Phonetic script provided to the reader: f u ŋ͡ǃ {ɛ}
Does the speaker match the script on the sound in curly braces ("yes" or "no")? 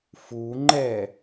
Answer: yes